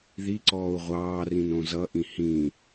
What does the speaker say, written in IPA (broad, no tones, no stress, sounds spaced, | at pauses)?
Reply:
ð i ǀ ɔː u̯ ʁʷ ɑː r ĩ n õ z ʌ ʔ ĩ h ĩ